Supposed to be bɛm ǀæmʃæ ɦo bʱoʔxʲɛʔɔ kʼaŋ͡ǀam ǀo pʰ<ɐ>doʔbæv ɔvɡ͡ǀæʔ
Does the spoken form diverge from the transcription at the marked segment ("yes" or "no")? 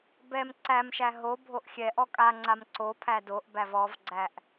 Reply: yes